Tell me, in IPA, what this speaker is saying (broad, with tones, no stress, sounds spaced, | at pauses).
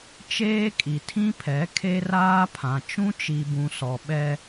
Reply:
t͡ʃ eː˦ kʼ i˨ tʰ ĩ˦ pʰ ɛ˨˦ kʰ e˦ r aː˦ pʰ ã˨ t͡ʃ ũ˦ t͡ʃ i˨ b ũ˨ s ɔ˨ ɓ ɛ˦